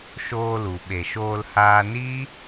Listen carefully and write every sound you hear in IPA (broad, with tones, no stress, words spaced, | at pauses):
ʃoː˧lu˨ ɓe˨ʃoː˧l haː˧ni˦